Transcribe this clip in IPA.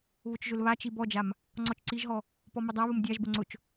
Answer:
β ʊ t͡ʃ ʒ ʊ l β a t͡ʃ i b ɔ d͡ʒ a m | ŋ͡ǀ ɔ t͡ʃ ǀ i ʒ ɦ ɔ | p ɔ m ʊ dˤ a β ʊ m dʲ a ʒ b ʊ ŋ͡ǀ ʊ t͡ʃ

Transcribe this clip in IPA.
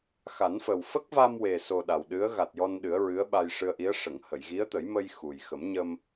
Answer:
x a˨˩˦ n f ə˨˩ w f ə˦˥ k̚ v a˧ m w e˨˩ s o˨˩ ɗ a˨˩ w ɗ ɨ˧˥ ə̯ ɣ a˨˩ t̚ j ɔ˧ n ɗ ɨ˨˩˦ ə̯ ɹ ɨ˧˥ ə̯ ɓ a˧ j ʂ ɨ˧ ə̯ ʔ i˧˥ ə̯ ʂ ə˨˩˨ ŋ h ə˨˩˨ j ɣ i˧˥ ə̯ t̪ ə˨˩˦ j m ə˧ j x u˨˩ j x ə˨˩˦ m ɲ ə˧ m

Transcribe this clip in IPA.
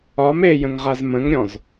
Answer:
ɒ m e j ə̃ ŋ ʁ a z m ə̃ ŋ ɾʲ ɔ̃ z

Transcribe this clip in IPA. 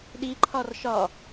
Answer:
ɗ i ǃʰ ɒ r ʃ ɒ

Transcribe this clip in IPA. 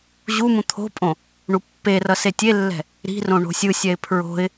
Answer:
ʑ u m ũ t̪ʰ o̤ pʼ õ | ɳ u pː e r ʌ s e tʲ e lː ɛ̤ | ɾ i̤ r õ ɳ o̤ sʲ ɯ sʲ ɛ ɪ̯ pʰ ɹ o̤ ɪ̯

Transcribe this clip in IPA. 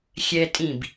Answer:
xʲ ɛ tʼ ĩ b

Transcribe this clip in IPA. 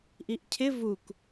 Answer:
ʔ i ʔ cʰ ɪ v u k

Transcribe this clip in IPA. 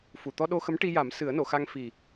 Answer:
f u˨˩ t̪ ɔ˧ ɗ o˧ x ə˧˥ m ʈ i˧ j a˨˩˦ m s ɨ˨˩˦ ə̯ n o˨˩˨ x a˧ ŋ f i˨˩

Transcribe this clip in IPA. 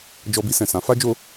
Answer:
d͡ʒ ɔ˧ b i˧ s ɛ̃˨ s ã˨˦ f a˦ d͡ʒ o˦

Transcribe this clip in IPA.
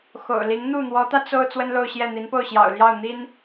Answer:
x o̰˨˩ ʊ̯ l i˧˥ ŋ n̪ u˥˩ n̪ w ɔ˧˥ t̪ ä˧ t͡s o˥ ʊ̯ t͡s w ə˥ n l o˥˧ ʊ̯ ɕ j ɛ˥˩ n̪ i˧˥ n p o˥˩ ʊ̯ ɕ j ɑ̰˨˩ ʊ̯ l j ɑ˥˩ ʊ̯ n̪ i˥ n

